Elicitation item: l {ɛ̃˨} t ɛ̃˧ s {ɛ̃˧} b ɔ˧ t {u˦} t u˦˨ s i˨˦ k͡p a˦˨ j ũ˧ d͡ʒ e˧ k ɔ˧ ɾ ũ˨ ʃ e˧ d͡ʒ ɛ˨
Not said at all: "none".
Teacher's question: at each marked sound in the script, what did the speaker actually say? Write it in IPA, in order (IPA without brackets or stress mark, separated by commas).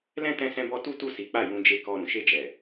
ɛ̃˦, ɛ̃˧, u˦